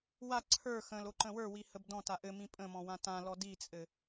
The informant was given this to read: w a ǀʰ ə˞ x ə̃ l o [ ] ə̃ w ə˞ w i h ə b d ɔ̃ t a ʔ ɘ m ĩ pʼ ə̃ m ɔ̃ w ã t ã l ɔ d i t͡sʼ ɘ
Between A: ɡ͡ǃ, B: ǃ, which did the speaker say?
B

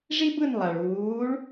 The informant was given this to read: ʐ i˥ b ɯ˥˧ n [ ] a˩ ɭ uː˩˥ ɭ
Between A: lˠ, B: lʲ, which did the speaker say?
A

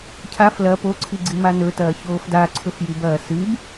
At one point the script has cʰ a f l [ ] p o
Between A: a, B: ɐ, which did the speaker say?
B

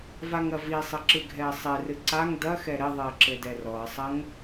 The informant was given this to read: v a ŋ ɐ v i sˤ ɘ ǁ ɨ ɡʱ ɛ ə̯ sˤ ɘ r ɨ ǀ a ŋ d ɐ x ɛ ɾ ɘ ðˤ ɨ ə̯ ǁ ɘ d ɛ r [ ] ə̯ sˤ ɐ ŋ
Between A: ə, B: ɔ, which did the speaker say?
B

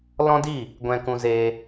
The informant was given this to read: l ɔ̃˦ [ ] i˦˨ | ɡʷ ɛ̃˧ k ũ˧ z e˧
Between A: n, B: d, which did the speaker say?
B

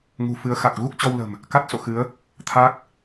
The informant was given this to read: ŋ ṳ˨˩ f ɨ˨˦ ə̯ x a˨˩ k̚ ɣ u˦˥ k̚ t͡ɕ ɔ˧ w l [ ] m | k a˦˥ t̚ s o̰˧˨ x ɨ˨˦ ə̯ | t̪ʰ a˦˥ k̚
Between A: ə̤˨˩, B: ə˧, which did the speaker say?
A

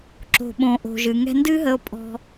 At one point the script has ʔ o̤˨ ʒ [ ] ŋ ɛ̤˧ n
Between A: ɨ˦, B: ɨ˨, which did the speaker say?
B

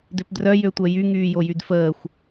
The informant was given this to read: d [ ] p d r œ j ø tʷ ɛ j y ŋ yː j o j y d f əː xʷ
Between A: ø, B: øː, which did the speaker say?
A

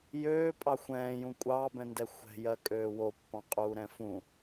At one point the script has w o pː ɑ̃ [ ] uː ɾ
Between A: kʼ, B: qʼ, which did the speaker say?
B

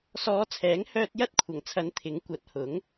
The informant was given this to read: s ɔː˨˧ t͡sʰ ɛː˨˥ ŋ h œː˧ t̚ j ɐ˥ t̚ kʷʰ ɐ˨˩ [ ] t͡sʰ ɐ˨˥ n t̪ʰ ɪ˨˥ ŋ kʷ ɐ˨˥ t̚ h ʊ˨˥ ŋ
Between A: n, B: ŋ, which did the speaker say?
B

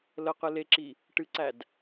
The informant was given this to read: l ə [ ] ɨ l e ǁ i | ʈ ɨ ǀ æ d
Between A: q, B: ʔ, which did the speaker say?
A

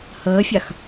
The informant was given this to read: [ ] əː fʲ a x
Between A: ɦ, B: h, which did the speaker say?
B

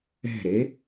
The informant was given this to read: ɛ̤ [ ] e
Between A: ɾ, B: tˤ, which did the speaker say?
A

